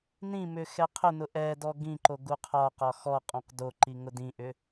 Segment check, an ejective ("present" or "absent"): present